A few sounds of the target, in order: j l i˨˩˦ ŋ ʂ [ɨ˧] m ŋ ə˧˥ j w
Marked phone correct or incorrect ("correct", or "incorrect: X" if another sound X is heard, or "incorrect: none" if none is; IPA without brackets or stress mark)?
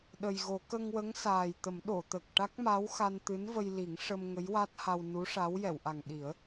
incorrect: ə˧